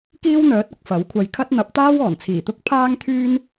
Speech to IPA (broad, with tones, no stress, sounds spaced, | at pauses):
k iː˥ w n̪ œː˨˥ t̚ ɐ˨ k̚ f ɐ˨˥ w kʷʰ ɐ˧ j kʰ ɐ˥ t̚ n̪ ɐ˨˥ p̚ t̪ aː˥ w ɔː˨˩ n t͡sʰ iː˨˩ t̪ ʊ˥ k̚ pʰ aː˥ ŋ t̪ʰ yː˥ n